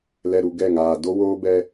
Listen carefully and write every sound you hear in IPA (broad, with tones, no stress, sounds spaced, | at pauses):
l ɛ˨ ɾ u˨ ɡ ɛ˦˨ ŋ aː˨ d o˦ w oː˦ b ɛ˦